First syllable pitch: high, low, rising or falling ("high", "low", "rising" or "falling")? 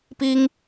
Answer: high